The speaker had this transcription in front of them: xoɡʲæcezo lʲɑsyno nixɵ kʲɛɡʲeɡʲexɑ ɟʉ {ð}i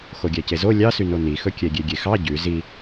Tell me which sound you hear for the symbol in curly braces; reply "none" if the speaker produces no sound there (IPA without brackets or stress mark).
z